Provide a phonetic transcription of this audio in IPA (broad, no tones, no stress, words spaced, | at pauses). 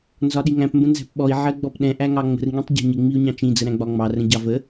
nzɒɗiŋæ̃p mbə̃nzæ̤pɓɔi̯ ʕɜɡ͡bɔpɗɛ̃ ʔæŋɑŋ͡mə̤r ŋĩtˤɟæ̤ɲɪ ŋ͡miu̯ɲɑ̃t͡ʃĩ d͡zəɾæ̃ɡ͡bɒŋ͡mɑ rə̃ɟɑvə